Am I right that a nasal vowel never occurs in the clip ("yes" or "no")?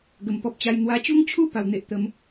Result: yes